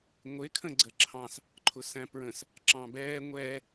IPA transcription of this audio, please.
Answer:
ŋʷ ɪ kʰ ə̃ ɡ͡ǀ ə ǁʰ ɑ̃ s | ǃʰ ʊ s æ̃ p ɹ ə̃ s | ǁ ɑ̃ b ɛː ŋʷ ɛː

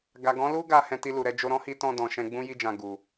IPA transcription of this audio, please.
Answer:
ɡ a˨ ɡ ɔ̃˨˦ l u˦ ɡ a˧ h ɛ̃˧ t i˧ l u˨ ɾ ɛ˧ d͡ʒ o˧ ɾ ɔ̃˦ h i˧ t ɔ̃˧ d ɔ̃˨ ʃ ɛ̃˧ ɡ͡b ũ˦ j i˧ d͡ʒ ã˨ ɡ u˨

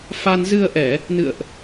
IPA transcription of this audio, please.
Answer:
f a˧ n z ɨ˧ ə̯ ʔ ɛ˧˩˨ | n ɨ̰˧˨ ə̯ ʔ

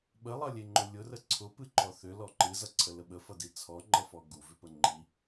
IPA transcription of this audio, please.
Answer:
ɓ ə lˠ ʌ lʲ e ŋ͡ǃ ʊ lʲ ʊ r ə ǀʰ ʊ p ɨ ǃ ɔ θ ʏ l ɔ ǃ ɨ z ʌ ǀʰ ə l ə ɓ ə f ʌ d i t͡sʰ ɔ ŋ͡ǃ ʌ f ɔ ɡ u v ʏ p ə ŋ͡ǃ i

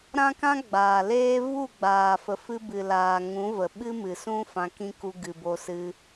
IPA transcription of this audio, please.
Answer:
ɾ ã˦ k ã˦ ɡ͡b aː˨ l eː˦ v u˦˨ ɡ͡b aː˨ f ə˨ f ɨ˧ b ɨ˨ l aː˨ ŋ ũ˨˦ v ə˨ ɓ ɨ˦ m ɨ˨ s ũ˦ f ã˧ k ĩ˦ k u˧ ɡ ɨ˨ b o˧ s ɨ˧

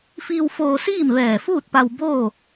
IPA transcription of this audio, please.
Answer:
f iː˧ w f oː˧ s iː˥˨ m ʋ ɛː˧˩ f uː˥˨ t̚ p a˧ w b oː˥˨

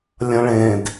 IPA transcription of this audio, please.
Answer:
lʲ ɐ̃ ɭ ẽ d

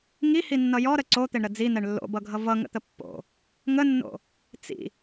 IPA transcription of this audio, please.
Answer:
ŋ i h i nː ʌ j ɔ ɾ ə ǀ o t̪ e ɳ ɾ ə d͡z i n̪ ɛ ɳ lː o̰ b ʌ ɡʱ ʌ v ʌ ŋ ə̰ t̪ ə pː o̰ | ŋ ə nː o̰ | t͡s ḭ

